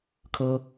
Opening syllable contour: high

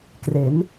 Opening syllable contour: rising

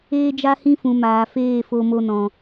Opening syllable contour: high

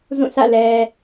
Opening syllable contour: falling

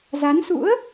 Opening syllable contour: rising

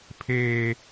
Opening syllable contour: low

